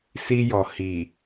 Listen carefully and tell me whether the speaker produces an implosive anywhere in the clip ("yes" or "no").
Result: no